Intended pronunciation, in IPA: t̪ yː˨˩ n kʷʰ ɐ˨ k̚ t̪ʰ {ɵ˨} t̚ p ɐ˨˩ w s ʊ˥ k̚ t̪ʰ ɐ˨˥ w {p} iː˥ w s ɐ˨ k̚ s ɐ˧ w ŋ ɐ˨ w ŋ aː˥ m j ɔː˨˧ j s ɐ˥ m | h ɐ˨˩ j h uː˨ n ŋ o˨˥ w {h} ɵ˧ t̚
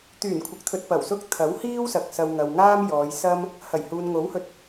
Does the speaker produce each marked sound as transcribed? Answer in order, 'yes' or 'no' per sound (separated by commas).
yes, no, yes